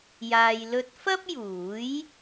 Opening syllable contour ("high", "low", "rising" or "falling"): low